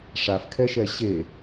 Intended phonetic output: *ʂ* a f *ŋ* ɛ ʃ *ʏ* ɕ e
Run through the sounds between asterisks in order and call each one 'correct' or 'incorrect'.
correct, incorrect: kʰ, incorrect: ɛ

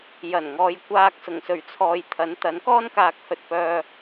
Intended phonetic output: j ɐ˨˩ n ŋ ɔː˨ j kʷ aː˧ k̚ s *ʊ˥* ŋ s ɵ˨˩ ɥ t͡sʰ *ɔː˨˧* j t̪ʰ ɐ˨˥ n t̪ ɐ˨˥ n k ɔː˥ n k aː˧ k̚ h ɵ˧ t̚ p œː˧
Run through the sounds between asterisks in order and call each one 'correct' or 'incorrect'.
incorrect: ʊ˨˩, incorrect: ɔː˨

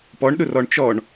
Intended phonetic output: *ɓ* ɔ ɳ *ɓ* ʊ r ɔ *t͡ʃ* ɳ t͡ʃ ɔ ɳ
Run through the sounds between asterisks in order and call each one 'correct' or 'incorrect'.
incorrect: p, incorrect: ɗ, incorrect: none

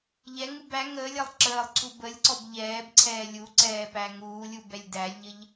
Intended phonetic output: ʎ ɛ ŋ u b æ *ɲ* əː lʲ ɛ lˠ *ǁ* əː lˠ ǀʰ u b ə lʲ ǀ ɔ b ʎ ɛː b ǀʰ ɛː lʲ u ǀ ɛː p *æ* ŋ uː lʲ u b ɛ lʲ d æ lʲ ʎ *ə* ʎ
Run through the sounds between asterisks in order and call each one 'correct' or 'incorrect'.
incorrect: ŋ, correct, correct, correct

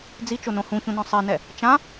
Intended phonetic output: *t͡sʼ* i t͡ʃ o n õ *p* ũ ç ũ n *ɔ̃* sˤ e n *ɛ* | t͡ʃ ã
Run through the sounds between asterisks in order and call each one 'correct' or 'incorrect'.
incorrect: d͡z, incorrect: h, correct, correct

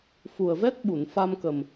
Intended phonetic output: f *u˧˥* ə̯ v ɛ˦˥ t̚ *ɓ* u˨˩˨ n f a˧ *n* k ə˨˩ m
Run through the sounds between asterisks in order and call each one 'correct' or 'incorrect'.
incorrect: u˨˩, correct, incorrect: m

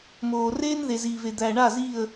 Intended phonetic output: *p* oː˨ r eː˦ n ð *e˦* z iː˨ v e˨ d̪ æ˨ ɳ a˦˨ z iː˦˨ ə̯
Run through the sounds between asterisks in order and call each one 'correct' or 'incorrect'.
incorrect: m, incorrect: e˨

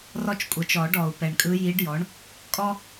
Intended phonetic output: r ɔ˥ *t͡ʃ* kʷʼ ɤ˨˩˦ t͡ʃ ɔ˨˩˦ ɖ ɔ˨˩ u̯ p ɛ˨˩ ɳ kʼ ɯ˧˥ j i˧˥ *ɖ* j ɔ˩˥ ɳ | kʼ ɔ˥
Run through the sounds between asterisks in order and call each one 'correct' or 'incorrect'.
correct, correct

